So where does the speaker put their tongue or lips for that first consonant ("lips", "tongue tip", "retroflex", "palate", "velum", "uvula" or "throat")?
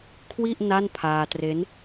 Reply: velum